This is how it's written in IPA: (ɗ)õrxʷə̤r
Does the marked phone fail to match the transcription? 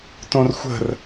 yes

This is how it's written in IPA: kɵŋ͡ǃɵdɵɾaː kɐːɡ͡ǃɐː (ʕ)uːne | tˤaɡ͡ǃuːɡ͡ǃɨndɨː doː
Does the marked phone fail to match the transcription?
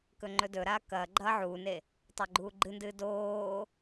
no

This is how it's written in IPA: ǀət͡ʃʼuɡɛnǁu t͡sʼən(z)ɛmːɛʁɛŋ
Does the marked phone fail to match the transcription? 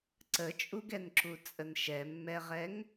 yes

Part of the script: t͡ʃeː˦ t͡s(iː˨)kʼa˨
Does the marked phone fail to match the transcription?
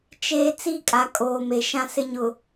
yes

